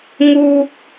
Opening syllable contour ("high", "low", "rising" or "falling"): low